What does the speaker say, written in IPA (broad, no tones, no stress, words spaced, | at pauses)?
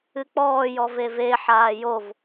ɨk͡pɔː jɔveve ħaːjov